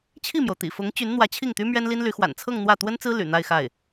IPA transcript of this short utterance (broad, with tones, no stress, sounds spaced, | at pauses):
t͡ɕʰ i˥˩ m j o˩ ʊ̯ t̪ ḭ˨˩ f ʊ˧˥ ŋ t͡ɕ y˧˥ n n̪ w ä˧˥ t͡ɕʰ i˥˩ ŋ t̪ y˥ m ɥ ɛ˥ n l i˥ n l y˧˥ x w a̰˨˩ n t͡sʰ ɤ˥˧ ŋ n̪ w ä˥˩ t̪ w ə˥ n t͡s ɹ̩˥ l y̰˨˩ n̪ a˥˧ ɪ̯ x a˥˩ ɪ̯